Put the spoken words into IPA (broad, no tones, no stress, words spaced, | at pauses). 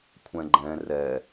kʷʰɛ̃ɡ͡ǃɛ̃ rɛ